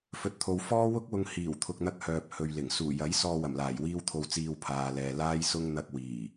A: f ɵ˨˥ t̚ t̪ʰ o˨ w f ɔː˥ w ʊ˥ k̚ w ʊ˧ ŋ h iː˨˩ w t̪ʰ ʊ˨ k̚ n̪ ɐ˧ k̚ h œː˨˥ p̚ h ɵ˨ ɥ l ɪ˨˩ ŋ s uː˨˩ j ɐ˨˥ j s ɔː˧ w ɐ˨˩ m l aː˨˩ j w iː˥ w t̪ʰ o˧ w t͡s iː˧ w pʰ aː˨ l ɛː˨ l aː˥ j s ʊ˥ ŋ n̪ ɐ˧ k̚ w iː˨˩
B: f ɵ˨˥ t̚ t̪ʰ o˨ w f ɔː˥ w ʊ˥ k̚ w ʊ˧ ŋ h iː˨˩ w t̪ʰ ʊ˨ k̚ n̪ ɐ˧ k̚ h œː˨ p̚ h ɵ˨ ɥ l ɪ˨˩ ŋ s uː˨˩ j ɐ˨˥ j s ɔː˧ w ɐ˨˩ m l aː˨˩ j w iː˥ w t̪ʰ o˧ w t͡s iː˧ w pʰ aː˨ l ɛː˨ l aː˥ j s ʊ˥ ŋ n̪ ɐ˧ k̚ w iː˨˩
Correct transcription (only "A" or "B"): B